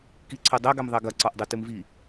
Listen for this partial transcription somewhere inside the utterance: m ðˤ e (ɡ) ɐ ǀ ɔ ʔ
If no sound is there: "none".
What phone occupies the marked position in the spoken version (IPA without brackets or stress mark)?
ɡ